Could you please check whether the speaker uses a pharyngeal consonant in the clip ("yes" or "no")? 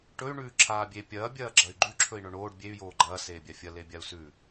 no